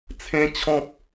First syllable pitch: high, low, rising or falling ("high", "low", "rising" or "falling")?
high